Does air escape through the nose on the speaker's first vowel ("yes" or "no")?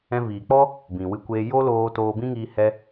yes